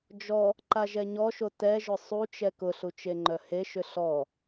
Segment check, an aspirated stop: absent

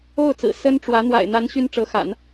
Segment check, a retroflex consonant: present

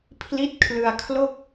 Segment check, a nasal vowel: absent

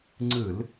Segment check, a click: present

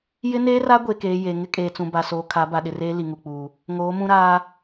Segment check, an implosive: present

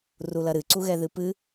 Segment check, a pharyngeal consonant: absent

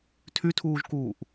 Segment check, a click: absent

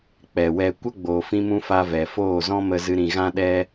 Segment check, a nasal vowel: present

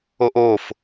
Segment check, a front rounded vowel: absent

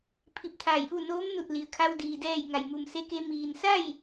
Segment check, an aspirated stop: present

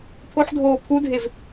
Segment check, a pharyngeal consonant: present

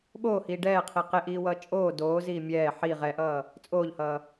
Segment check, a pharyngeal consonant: present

